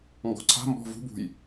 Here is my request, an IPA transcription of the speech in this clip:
ŋɡɔ̤ǀʰa̤ mbɔ̤vṳ bṳj

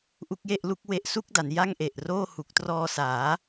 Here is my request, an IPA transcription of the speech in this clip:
ʔu˥˩k̚je˥˩ʔlu˥˩k̚ we˥˩ʔsu˥˩k̚da˩˦n ja˥˩ŋʔe˨˩ʔroː˥˩ hu˨˩k̚trɔː˧saː˩˦

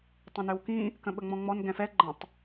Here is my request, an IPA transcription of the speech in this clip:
tˤə̃nøwkĩ | kə̃ɓəŋ͡mɔ̃ŋ͡mɔn ɡɛ̃fɛ ɡ͡ǃə̃tˤ

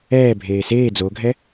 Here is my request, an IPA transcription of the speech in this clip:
ɛːbʱeː seː d͡zoɡʱɛ

